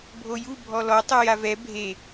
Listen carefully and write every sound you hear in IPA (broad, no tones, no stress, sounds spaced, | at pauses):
bʱ o j u bʱ ɔ l ɔ tˤ ɯ j a v ɛ bʱ e